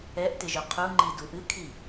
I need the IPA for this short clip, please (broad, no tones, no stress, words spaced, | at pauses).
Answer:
ɛʔtɪʒœ qʰuŋ͡ǃidu ʔɨkʰi